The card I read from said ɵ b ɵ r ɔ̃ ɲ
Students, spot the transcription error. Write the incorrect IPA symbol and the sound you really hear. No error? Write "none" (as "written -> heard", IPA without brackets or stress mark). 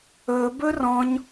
none